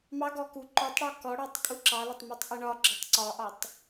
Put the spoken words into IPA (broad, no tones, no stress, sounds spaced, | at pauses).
m ɑ ɡ ɔ k u ǃ ɔ tˤ ɽ ɔ k ɔ ɽ ɑ tˤ kʼ u ǁ ɑ l ə tˤ m ɑ tˤ ʔ ə ɳ ɒ ɡ͡ǁ ɒ tˤ ǀ ɒ ʔ ɒ tˤ